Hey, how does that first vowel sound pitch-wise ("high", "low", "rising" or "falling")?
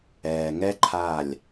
low